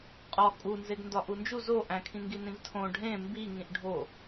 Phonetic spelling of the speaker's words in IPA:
qʼ ɒ kʼ u n z e ɡ n d ɒ ʔ u n d͡ʒ u z o ʔ æ̃ kʰ ĩ ŋ ɡ i n ĩ v tʰ õ ɖʱ ẽ m b i ŋ ĩ ʔ ɖʱ o

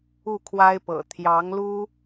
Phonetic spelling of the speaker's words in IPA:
u˥˩ kʰ w a˥ ɪ̯ p ɤ̰˨˩ t̪ʰ j ɑ˧˥ ŋ l u˥

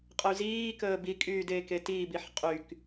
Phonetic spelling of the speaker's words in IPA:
qʼ ə y̯ z iː k əː b i kʼ yː d eː k e t iː b i ħ qʼ y k

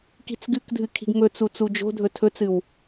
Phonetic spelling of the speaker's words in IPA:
k i̤ t͡s ɡ ɨ k dʱ ɨ kʰ i̤ ɡ m ɵ t͡s u t͡s u d͡ʒ o̤ dʱ ɵ tʰ ɵ t͡s ɨ w

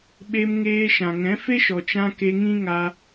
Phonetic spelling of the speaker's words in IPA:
ɓ e˧ m ŋ eː˧ ʃ ã˨ ŋ ɛ̃˨˦ f e˦ ʃ ɔ˨ t͡ʃ ã˧ k e˧ ŋ ĩ˦ ŋ a˧

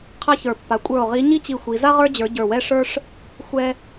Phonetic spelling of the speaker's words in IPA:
qʰ a˥ ç ə˞˦˨ pː a˧˥ kʷʼ ə˞˦˨ o̯ ʁ i˧˥ ɲ i˥ t͡ɕ i˦˨ xʷ i˧˥ z a˥ ʁ ə˞˥ d͡ʑ ə˞˧˥ ɟ ə˞˦˨ w ɛ˥ ʂ ə˞˥ ʂ | xʷ ɛ˥

